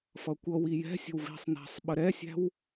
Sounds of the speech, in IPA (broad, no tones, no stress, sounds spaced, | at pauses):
f ʌ kʷ ʌ w i j ɛ̤ sʲ ə̤ w v i̤ sˤ n æ̤ sˤ ɓ ə ɾ ɛ sʲ æ̤ w